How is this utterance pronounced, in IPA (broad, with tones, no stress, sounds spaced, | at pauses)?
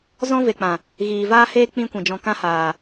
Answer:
z ɔ̃˦ v e˨ k͡p ã˨ | ɣ iː˨ v aː˦ h eː˦ k͡p ĩ˦ kʷ ĩ˨ d͡ʒ ɔ̃˧ k ã˦ h aː˨